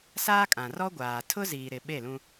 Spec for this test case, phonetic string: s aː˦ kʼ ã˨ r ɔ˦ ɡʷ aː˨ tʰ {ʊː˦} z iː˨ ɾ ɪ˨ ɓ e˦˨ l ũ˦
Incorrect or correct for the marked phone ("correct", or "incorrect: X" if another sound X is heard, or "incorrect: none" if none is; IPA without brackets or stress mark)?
incorrect: ʊ˦